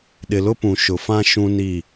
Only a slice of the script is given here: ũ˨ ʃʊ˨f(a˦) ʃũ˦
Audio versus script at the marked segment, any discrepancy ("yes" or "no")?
yes